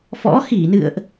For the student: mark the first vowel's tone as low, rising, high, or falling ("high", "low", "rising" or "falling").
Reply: rising